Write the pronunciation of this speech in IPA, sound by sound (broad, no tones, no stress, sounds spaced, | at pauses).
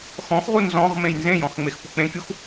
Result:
x ɔ̃ x ʁ u n z ɔ̃ ʁ m ẽ j n z ẽ j ɔ̃ x ŋ͡m e x p u k͡p ẽ kʲ u x